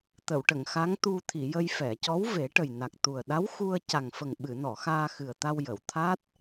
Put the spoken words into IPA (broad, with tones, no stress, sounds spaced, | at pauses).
t̪ ə˨˩˨ w ʈ ə˨˩˨ ŋ x a˧˥ ŋ t̪ u˧ t̪ʰ i˨˩˨ j ə˧ j f ɛ˨˩˨ c ɔ˧˥ w v e˨˩˦ ʈ ə˨˩ j n a˨˩ k̚ t̪ u˨˩ ə̯ ɗ a˧˥ w x u˧ ə̯ c a˨˩ ŋ f ə˨˩ ŋ ɓ ɨ˨˩˨ n ɔ˨˩˨ x aː˧ x ɨ˨˩ ə̯ t̪ a˧ w j ə˨˩˨ w t̪ʰ a˦˥ t̚